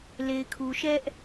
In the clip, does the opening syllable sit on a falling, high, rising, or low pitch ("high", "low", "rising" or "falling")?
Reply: low